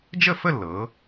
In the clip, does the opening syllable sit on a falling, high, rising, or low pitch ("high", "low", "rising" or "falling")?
falling